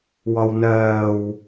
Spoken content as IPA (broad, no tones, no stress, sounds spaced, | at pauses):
w ɒ w n ɜː w